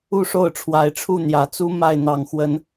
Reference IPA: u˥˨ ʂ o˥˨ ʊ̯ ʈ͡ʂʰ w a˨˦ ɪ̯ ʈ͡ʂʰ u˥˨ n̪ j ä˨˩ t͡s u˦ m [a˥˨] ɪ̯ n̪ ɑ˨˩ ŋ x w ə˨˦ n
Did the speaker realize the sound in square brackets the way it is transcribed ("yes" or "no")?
yes